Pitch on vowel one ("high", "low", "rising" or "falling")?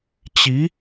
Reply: rising